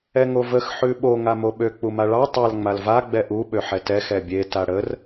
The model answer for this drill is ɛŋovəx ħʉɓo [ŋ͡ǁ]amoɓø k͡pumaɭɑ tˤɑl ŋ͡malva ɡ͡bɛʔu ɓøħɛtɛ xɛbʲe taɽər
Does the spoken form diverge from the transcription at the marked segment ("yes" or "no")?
yes